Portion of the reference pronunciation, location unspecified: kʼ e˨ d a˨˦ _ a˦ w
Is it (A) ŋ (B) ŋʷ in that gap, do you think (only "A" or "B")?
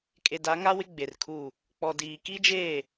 A